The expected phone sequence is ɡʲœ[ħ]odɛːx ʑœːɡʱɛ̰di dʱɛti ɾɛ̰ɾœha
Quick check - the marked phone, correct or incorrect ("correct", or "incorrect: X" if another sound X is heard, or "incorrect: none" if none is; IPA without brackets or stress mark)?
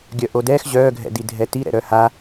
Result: incorrect: ʔ